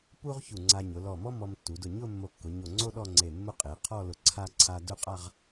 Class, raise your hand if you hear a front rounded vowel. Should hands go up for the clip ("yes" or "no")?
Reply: no